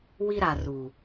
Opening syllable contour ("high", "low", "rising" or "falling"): high